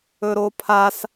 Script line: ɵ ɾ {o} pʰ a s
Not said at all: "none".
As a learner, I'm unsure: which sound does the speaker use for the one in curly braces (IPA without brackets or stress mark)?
o